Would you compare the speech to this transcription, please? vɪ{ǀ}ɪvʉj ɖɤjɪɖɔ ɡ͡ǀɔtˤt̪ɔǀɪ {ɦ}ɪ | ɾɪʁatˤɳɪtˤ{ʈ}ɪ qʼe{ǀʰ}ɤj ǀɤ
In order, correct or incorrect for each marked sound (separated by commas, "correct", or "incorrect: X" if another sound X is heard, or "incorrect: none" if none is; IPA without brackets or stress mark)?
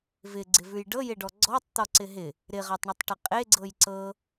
incorrect: ɡ͡ǀ, correct, correct, incorrect: ɡ͡ǀ